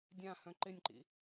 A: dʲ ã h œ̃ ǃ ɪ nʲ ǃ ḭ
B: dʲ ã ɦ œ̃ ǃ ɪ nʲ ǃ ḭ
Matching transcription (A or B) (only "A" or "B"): A